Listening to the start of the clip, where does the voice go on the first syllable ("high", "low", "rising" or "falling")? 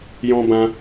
high